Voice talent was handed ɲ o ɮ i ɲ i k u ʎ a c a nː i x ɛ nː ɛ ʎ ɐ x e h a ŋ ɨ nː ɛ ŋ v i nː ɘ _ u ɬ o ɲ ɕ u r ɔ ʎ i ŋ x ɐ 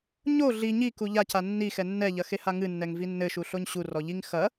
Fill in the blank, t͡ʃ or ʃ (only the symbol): ʃ